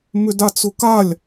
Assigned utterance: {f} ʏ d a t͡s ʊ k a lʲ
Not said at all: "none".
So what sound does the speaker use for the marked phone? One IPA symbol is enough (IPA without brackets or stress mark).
m